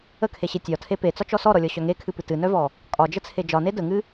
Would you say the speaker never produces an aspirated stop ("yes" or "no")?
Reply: no